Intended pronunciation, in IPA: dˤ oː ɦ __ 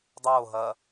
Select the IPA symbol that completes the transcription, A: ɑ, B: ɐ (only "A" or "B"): B